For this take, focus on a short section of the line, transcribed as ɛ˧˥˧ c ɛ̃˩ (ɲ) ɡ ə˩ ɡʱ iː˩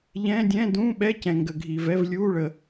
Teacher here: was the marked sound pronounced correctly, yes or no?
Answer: no